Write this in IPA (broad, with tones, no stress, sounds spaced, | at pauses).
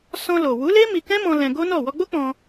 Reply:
s ɔ̃˧ l o˨ w u˨˦ l e˦ m i˧ k ɛ̃˦ m ɔ̃˧ l ɛ̃˧ ɡ o˦ n ɔ˦˨ w ɔ˧ ɡ͡b o˦ k͡p ɔ̃˧